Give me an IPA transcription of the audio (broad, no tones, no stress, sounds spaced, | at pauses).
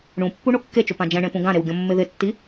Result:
ɳ ũ pː u ɳ o kː e t͡ʃ ʊ p ã d͡ʒ ɛ̃ ɳ ẽ p ũ ɡ ã ɾ e w ɡʲ ɔ̃ mː ɪ ð ɪ tː i